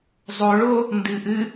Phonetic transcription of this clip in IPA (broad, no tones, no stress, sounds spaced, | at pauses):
zˤ o ɭ o | n d ɨ ʔ ɨ